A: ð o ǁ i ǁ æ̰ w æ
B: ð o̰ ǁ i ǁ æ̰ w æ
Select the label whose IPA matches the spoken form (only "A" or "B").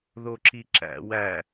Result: A